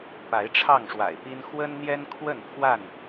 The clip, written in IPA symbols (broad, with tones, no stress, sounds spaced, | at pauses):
p a˨˦ ɪ̯ ʈ͡ʂʰ ɑ˥˨ ŋ ʂ w a̰˨˩ ɪ̯ p i˦ n x w ə˦ n n̪ j ɛ˦ n kʰ w ə˥˨ n pʰ w a˥˨ n